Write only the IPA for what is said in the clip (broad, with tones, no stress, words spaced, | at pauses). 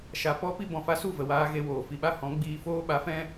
ʃa˧ pɔ˦ pi˦bɔ̃˨fa˦ su˦˨və˨waː˧ ɣe˧woː˨fi˧ɓa˦ hɔ̃˨˦ɡ͡biː˧ foː˦ɓa˨˦fɛ̃˦